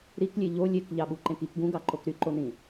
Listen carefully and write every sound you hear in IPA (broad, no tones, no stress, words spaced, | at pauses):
ɾiklʲe ʎo lʲek ʎɑɓuǃẽkik ɡũɡɑǃok ɾyǃonĩ